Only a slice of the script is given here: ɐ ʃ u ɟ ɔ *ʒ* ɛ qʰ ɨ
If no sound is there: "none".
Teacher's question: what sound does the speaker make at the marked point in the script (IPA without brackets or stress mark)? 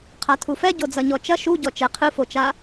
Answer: t͡ʃ